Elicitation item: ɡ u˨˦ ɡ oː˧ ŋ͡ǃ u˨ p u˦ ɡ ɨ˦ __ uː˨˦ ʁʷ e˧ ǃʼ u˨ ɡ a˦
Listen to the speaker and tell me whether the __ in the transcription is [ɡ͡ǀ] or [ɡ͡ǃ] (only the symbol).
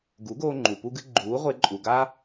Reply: ɡ͡ǃ